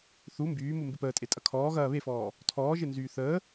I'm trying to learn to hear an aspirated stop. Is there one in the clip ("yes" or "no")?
yes